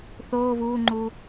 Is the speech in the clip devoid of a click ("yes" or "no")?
no